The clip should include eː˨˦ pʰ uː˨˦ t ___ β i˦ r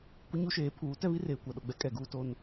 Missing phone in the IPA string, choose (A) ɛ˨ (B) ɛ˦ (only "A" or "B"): B